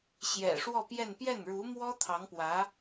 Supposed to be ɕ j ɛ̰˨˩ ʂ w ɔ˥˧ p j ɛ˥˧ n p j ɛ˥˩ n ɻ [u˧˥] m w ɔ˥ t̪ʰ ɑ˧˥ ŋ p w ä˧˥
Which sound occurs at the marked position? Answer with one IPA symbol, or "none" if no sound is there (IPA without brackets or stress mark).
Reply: u˧˥